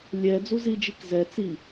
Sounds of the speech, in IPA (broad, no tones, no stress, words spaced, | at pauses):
lʲɛ d͡zuzid͡ʒik zɛ t͡si